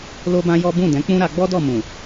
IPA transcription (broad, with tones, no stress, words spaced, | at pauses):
lo˦bã˦jɔ˦ bũ˦˨dɛ̃˨˦k͡pũ˦ ɾa˧ɡ͡bɔ˦dɔ˦˨mũ˨